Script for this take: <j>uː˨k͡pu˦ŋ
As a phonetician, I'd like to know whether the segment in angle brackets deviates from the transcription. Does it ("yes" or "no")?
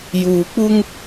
no